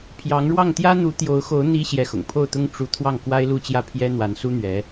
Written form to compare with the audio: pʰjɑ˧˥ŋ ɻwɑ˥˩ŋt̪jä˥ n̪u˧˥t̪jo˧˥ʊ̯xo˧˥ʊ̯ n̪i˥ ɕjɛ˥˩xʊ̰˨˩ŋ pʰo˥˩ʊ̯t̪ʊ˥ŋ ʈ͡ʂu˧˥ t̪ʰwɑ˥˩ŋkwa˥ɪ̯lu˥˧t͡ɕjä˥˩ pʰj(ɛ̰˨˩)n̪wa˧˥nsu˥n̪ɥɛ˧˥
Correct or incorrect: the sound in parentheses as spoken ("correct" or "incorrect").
incorrect